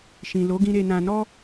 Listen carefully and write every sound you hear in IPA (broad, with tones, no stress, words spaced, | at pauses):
ʃĩ˨ lo˨˦ɡĩ˧ ɾe˨nã˨nɔ˧